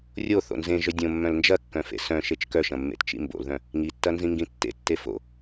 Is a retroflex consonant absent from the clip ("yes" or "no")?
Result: yes